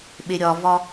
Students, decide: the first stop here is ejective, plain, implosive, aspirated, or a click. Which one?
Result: implosive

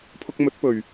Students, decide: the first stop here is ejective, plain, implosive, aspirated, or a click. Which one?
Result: aspirated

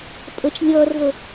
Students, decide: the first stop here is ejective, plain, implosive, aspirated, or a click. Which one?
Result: ejective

